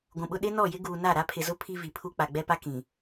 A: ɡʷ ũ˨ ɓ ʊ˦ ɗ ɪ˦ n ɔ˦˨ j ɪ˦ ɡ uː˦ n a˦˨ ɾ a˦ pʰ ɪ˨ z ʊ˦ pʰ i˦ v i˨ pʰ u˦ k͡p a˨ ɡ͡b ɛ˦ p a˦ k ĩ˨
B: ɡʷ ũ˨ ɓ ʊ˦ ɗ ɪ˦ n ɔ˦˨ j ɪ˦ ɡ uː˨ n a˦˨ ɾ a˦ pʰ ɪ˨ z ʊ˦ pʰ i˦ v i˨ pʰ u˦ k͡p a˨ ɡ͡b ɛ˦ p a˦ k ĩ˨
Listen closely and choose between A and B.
B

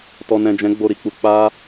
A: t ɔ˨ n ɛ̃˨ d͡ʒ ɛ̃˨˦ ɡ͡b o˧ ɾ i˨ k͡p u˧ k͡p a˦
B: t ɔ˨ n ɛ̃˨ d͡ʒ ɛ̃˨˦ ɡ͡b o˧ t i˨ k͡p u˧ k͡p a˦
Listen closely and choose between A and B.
A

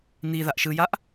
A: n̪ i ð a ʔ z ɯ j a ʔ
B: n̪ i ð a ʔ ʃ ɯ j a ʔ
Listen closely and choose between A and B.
B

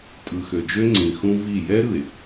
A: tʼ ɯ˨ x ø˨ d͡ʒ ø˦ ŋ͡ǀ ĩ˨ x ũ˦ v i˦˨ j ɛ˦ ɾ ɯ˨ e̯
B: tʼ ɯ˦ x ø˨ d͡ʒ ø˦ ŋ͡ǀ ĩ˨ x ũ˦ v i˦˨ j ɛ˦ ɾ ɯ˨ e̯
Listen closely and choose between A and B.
A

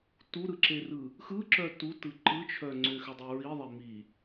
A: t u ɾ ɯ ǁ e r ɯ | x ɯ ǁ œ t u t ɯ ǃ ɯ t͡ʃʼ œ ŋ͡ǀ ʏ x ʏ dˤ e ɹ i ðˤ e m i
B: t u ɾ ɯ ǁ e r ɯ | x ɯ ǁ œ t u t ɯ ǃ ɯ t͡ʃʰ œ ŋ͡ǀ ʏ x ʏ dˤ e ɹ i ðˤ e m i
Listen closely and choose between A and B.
B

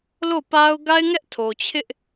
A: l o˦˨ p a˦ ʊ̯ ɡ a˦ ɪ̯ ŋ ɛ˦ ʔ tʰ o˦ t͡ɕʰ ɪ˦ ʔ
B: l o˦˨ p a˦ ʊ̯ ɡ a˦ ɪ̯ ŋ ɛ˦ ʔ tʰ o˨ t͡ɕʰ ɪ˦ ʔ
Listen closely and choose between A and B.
B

